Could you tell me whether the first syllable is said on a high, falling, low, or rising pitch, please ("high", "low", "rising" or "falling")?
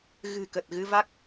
low